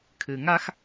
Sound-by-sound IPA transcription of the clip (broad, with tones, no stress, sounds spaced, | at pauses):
kʰ ɨ˨ ŋ a˦ x